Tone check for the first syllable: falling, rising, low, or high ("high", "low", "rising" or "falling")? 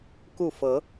falling